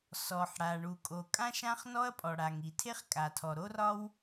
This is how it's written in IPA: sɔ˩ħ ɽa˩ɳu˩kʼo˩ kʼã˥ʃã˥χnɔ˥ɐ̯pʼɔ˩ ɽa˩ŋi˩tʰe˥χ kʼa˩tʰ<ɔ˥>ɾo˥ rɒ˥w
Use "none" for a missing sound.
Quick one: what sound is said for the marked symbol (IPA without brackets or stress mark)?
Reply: ɔ˩